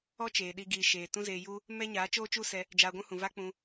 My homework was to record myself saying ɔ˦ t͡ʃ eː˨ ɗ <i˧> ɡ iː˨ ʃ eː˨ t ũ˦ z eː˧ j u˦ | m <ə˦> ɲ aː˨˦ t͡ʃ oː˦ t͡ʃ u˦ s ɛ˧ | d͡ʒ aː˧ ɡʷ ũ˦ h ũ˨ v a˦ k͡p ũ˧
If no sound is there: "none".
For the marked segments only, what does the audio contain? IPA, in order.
i˧, ɛ˦

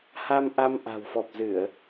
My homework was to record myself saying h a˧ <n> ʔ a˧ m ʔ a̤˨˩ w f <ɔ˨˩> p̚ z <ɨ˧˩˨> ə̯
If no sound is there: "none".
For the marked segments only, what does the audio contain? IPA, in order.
m, ɔ˨˩, ɨ˧˩˨

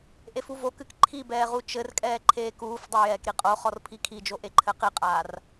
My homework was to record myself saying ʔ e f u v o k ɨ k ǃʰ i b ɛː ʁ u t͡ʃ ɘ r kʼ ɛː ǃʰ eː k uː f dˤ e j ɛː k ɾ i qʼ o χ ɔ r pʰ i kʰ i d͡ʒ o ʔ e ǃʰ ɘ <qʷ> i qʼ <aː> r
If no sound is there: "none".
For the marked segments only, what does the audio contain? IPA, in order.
q, aː

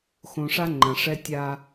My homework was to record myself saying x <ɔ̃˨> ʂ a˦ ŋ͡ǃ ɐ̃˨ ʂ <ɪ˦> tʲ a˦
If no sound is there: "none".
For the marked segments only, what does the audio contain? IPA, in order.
õ˨, ɛ˦

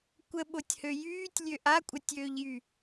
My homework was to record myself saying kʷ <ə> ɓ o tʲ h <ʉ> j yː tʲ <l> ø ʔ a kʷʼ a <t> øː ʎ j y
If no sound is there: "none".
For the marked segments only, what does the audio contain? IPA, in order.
ə, ø, lʲ, tʲ

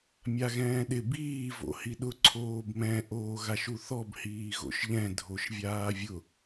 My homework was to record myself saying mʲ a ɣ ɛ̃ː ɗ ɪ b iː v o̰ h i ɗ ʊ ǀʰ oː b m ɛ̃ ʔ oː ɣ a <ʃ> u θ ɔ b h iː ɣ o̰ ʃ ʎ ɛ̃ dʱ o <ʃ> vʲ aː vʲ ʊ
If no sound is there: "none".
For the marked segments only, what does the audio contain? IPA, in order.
ʃ, ʃ

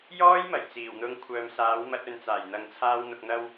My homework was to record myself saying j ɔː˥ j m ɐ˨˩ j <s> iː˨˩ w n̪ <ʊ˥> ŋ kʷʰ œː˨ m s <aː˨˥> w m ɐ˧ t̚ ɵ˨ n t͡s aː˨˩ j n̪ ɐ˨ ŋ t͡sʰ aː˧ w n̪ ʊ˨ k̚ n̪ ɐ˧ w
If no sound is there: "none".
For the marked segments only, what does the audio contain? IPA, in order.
t͡s, ʊ˧, aː˨˥

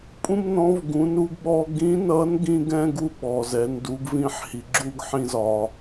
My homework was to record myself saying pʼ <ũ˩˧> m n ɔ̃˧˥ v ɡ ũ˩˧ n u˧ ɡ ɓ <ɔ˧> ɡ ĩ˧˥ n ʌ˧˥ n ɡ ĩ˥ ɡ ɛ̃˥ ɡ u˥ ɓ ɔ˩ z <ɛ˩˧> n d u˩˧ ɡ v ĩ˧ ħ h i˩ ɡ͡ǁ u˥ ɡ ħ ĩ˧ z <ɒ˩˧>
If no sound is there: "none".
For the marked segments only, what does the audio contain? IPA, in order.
ũ˥, ɔ˧, ɛ˩˧, ɒ˩

